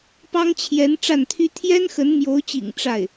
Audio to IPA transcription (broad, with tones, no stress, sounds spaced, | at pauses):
p ɑ˥ ŋ t͡ɕʰ j ɛ˧˥ n ʈ͡ʂ a˥˩ n t̪ʰ y˥ t̪ʰ j ɛ˥ n x ə˧˥ n m j o˧˥ ʊ̯ t͡ɕ ḭ˨˩ ŋ ʈ͡ʂ a˥˩ ɪ̯